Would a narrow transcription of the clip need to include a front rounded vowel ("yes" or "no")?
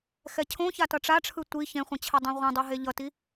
no